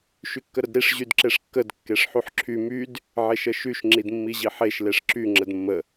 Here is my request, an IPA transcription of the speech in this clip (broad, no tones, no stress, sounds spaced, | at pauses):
ʃ y kː ə ɾ ə d ɾ i ʂ ʑ y d ǁ e ʂ kː ə d kː e ʂ ħ y ħ ǁʰ y m y d | ʕ e ʃ ə ʃ y ʃ ŋ͡ǁ i d mː i ʑ i ħ e ʃ l e ʂ ǁ y ŋ͡ǁ ə d mː ə